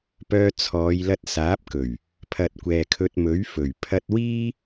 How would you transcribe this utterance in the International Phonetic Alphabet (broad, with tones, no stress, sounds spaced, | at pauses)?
p œː˧ t͡sʰ ɔː˨˧ j l ɐ˧ t̚ s aː˨˥ p̚ k ɵ˨˩ ɥ | pʰ ɐ˨ t̚ kʷ ɛː˨ kʰ ɵ˧ t̚ m ɵ˨˥ ɥ f ɵ˨˩ ɥ pʰ ɐ˧ t̚ w iː˥